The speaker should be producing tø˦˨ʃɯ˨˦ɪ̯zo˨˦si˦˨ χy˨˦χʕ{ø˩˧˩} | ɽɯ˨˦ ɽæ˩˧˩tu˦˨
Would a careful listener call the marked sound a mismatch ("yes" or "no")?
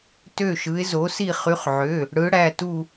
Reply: no